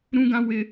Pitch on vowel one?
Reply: high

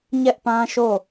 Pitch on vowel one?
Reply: high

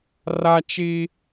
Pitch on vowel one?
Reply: high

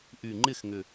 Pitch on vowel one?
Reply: low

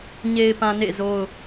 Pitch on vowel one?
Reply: low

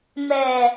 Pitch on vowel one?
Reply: low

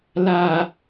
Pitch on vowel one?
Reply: low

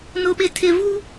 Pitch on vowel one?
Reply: low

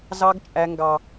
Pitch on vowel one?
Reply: high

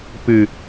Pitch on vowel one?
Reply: low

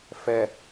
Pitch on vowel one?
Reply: low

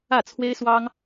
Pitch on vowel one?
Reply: falling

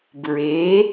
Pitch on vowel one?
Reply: rising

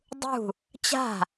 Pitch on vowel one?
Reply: falling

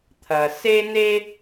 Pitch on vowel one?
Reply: low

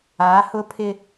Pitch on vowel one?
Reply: rising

